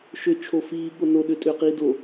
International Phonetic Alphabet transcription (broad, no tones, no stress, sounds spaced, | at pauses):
ʃ ʏ t͡ʃʰ o f iː ɠ o n o ɗ ʏː tʼ ʏː q iː d o